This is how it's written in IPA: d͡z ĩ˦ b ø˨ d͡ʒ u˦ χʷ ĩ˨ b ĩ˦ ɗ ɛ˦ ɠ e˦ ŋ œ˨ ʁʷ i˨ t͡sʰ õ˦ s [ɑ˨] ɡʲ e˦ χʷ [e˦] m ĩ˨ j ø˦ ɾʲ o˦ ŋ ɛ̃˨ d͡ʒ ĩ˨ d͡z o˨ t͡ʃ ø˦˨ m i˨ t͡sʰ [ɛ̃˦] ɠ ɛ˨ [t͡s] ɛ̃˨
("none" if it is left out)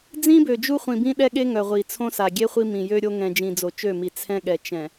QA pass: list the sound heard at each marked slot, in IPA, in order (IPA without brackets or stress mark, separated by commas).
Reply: a˨, i˦, ɛ̃˦, t͡ʃ